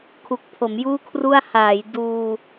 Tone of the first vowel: low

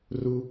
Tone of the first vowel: low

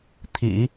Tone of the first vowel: low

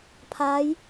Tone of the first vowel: rising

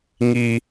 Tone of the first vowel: high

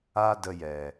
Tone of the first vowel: high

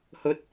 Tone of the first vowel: high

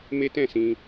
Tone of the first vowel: high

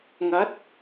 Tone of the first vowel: rising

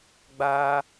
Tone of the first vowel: high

